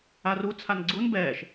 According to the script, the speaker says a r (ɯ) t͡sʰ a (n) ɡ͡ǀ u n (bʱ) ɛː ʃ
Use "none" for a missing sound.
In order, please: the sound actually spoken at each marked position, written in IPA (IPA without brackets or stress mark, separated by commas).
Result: u, n, b